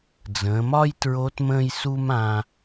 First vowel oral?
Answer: no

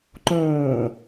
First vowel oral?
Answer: no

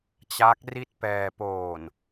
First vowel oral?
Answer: yes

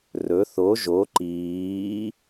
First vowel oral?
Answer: yes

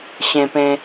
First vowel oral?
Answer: no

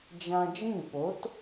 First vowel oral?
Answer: no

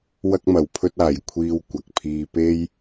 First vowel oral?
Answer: yes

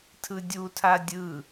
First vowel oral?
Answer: yes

